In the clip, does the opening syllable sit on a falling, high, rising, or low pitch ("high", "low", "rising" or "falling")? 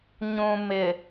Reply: low